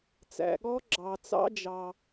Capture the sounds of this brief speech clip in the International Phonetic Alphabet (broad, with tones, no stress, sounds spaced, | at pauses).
t͡s æ̰˩ ɠ ɔ˦˥ ɡ͡ǁ ɑ˩ t͡s ɑ̰˦˥ d͡ʒ ɑː˩